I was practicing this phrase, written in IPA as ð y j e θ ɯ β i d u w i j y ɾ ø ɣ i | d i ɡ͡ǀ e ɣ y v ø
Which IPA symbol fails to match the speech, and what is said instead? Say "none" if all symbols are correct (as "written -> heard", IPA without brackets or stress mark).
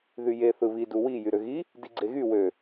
v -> w